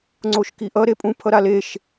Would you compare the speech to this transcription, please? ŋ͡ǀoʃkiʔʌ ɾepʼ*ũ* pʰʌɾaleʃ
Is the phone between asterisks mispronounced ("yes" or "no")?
no